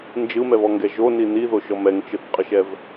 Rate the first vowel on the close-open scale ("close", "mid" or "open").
close